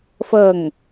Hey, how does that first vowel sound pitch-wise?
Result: falling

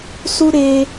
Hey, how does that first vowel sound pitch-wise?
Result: high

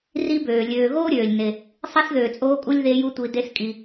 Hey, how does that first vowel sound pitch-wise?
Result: high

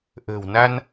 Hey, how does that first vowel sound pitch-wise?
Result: low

